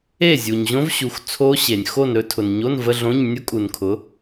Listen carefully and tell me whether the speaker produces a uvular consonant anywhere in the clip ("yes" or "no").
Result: no